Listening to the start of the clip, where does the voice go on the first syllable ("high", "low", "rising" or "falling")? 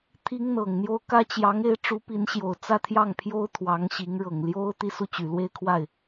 high